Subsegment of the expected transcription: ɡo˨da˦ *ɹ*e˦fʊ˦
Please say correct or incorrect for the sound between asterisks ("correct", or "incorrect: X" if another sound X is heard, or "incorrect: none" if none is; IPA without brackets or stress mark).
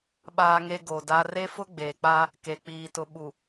incorrect: r